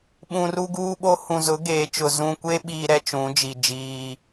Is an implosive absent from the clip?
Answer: no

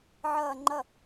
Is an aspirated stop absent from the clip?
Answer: yes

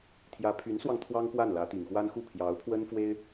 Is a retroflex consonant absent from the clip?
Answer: yes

